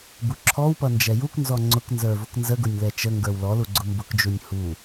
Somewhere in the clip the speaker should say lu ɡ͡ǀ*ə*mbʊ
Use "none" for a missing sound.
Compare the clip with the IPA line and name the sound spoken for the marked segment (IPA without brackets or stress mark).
ʊ